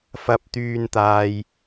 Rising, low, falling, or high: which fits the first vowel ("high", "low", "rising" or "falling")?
high